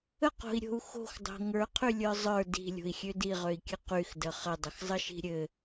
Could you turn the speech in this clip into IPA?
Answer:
əqo̤i̯ɾʲo̤u̯ xo̤xdˤo̤ ŋə˞qʰylʲə˞ zˤə˞ di̤lʲo̤i̯xʲø diʁøi̯kʲɘ qyxdə χədˤəxzˤəʃi̤ ɾʲɘ

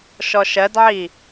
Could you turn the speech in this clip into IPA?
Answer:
ʃɔʃɜdʕi

